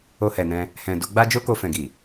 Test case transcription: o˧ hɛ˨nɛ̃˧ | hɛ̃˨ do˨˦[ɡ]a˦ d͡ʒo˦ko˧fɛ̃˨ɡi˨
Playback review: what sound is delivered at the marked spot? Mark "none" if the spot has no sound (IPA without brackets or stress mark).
ɡ͡b